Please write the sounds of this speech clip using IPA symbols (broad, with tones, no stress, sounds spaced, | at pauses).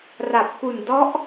r a˨˩ p̚ k u˨˩ n d ɔ˦˥ ʔ